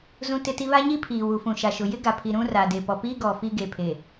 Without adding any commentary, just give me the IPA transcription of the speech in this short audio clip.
z ũ˦ t ɪ˦ t i˦ β a˦ ɲ i˦ pʰ iː˨ w u˨ f ũ˨ ʃ a˨ ʃ ʊ˨ j ɪ˦ ɡ a˨ pʰ i˨ ɾ ũ˦ r a˨ d e˨ p ɔ˨ p iː˦ ɡ ɔ˨ f i˦ ɡ e˨ pʰ e˨

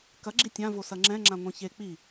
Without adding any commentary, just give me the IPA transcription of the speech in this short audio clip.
k ɐ ɡ͡ǁ i tʲ ã v o s ɐ ŋ͡ǁ ɛ̃ ŋ͡ǁ ã ŋʷ ɛ̃ ç e k͡p i

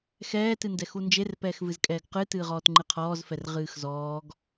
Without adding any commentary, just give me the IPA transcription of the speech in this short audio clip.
x ɛː t ɨ n d ɛ x u n d͡ʒ e r p ɛː x v ɨ z kʼ ɛː ɡ q ɨ t ɨː ʁ ɔː t ŋ͡ǃ ɨ qʰ ɔː z f ɛ r ʁ ɨː x z ɔː ɡ

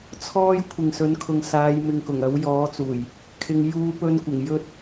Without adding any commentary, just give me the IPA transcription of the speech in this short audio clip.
t͡sʰ ɔː˧ j kʷʰ ɪ˨ ŋ s ɵ˨˥ n kʰ ʊ˨ ŋ s aː˨˧ j m ɪ˨ ŋ k ʊ˨˩ ŋ ɐ˨˥ w j ɔː˨˥ t͡s uː˨˩ j | kʰ ɪ˧ ŋ j uː˧ p ɵ˧ n kʷ ɪ˨˩ ŋ j ɵ˥ t̚

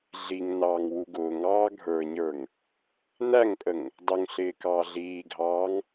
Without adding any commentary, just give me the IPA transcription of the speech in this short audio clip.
ɮ i ŋ n ɑː ŋ w u ɡ ʊː ŋ ɑː ɡʱ ə˞ ɲ ə˞ ŋ | n æ ŋ pʼ ə ŋ | dˤ ʊ ŋ ɬ ɪː k ɑː ɮ iː ɡʱ ɑː ŋ

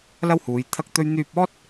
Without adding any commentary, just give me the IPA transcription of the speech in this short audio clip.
l ɐ˥ w h uː˨˧ j t̪ʰ ɐ˥ k̚ t̪ ɵ˥ ɥ n̪ yː˧ p̚ ɔː˥ t̚

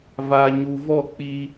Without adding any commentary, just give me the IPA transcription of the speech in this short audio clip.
v a˨ ɲ u˨ v ɔ˦˨ k͡p i˦

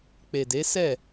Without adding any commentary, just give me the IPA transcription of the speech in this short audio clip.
k͡p e˨ d e˨˦ s ɛ˦˨

